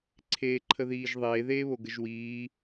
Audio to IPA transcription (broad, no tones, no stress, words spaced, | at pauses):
ǀʰeːǃʰəðiːʒðˤeː ðeːβoɡəʒwiː